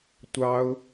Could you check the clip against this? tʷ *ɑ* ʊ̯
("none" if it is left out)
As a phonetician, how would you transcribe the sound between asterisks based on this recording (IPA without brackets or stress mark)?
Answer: ɑ